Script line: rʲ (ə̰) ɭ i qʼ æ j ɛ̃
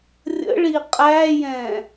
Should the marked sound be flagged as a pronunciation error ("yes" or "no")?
no